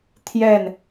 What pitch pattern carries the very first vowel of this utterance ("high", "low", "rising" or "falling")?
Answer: falling